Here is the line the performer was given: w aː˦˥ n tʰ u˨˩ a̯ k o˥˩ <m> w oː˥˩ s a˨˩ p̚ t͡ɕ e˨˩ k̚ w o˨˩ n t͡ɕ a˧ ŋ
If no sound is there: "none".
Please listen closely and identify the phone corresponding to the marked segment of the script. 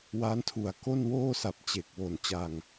n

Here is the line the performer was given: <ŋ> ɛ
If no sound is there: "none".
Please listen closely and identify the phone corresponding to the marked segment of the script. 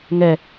ŋ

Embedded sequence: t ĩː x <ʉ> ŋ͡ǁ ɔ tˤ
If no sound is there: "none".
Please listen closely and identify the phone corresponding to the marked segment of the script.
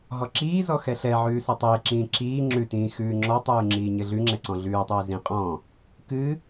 ʉː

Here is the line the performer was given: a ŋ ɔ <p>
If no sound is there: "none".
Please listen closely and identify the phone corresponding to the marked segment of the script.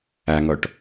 ʈ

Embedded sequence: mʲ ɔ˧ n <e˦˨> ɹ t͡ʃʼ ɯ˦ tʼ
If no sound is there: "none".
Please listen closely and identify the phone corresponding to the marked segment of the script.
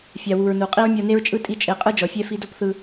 e˦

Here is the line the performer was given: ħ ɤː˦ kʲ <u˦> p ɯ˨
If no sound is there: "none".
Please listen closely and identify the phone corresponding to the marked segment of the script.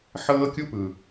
u˦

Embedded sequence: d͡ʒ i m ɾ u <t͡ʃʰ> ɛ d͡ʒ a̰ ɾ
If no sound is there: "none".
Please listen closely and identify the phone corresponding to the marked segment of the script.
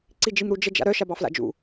d͡ʒ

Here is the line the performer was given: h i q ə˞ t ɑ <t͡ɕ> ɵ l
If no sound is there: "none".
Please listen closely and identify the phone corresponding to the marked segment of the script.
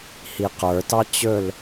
t͡ɕ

